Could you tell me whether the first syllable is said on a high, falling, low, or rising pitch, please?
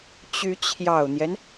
rising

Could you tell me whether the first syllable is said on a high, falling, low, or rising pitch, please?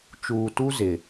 low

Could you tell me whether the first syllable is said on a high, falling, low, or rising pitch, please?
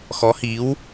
rising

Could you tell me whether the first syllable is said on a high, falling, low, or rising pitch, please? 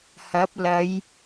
rising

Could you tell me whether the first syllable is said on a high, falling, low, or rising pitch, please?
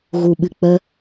low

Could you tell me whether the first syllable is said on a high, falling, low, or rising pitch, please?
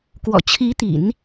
low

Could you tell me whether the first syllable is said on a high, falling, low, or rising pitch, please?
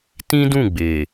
high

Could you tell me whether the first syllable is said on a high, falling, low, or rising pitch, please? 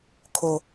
low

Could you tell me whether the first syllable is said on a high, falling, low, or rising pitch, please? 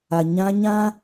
low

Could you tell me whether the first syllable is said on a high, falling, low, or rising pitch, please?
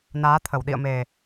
rising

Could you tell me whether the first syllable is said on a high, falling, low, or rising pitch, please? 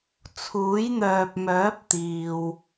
rising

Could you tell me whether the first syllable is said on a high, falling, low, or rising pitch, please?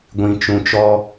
low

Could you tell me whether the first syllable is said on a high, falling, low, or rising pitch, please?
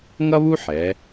high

